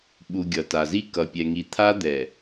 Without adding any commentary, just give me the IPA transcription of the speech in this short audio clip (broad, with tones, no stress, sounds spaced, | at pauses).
ɓ u˨ ɡʲ ʌ˨ t a˨ z i˦ k ʌ˨ pʲ ɛ˨ ŋ i˨ t̪ʰ a˦ d̪ ɛ˨